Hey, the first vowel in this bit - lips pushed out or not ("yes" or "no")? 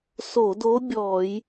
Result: yes